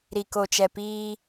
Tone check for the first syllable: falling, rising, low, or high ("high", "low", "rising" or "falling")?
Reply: low